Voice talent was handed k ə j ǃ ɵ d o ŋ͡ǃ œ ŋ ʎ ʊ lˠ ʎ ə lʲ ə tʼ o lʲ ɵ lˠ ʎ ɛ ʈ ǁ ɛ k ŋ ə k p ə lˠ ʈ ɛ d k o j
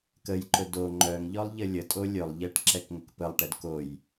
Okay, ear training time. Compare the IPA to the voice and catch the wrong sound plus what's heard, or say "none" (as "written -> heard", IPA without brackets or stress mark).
ʊ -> ɔ